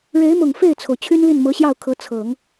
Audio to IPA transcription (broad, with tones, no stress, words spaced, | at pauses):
ɻe˧˥ɪ̯mʊ˨˩ŋ fe˥˩ɪ̯t͡sʰo˩ʊ̯ t͡ɕʰy˥nli˥˩nmɤ˧˥ɕjɑ˥˩ʊ̯ kʰɤ˧˥t͡sʰɤ˨˩˦ŋ